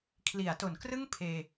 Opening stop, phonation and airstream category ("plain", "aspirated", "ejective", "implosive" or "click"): aspirated